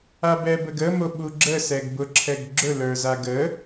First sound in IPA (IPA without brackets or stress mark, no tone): a